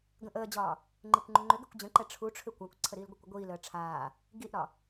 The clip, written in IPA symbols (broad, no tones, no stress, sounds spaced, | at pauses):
ɡ ə̃ ʔ əː d͡ʑ ɒː | ŋ͡ǃ i kʷ ŋ͡ǃ ʏ ŋ͡ǃ ʏ ɡ ɛ kʷ d͡ʑ ə̃ ǃ ɛ ʈ͡ʂʰ u ʈ͡ʂʰ ʏ kʷ a kʷ ǀʰ ə ɾ iː l ɡʷ ə kʷ ə ɡʷ iː l əː ʈ͡ʂʰ aː | ɡ i ʔ ɾ ɒ